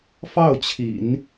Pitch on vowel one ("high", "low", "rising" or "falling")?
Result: falling